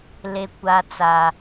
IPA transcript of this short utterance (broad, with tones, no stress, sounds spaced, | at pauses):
l e˨ kʷ a˦ t͡s a˦